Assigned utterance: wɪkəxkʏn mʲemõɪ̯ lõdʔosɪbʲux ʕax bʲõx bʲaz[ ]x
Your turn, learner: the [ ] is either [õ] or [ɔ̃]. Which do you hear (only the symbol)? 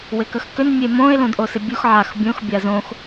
õ